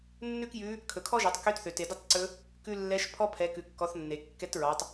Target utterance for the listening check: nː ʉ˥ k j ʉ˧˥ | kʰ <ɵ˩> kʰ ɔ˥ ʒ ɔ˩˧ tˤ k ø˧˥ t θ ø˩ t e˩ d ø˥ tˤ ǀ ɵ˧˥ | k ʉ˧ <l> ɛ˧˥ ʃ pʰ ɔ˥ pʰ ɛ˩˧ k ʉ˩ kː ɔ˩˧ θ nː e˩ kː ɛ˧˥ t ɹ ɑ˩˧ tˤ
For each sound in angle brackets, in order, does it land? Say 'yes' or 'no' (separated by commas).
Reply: yes, no